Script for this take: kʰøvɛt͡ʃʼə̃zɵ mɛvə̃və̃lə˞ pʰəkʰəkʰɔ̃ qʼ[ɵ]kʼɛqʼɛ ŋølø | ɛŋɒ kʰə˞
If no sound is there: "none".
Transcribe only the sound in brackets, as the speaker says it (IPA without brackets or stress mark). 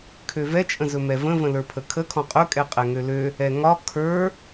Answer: ɵ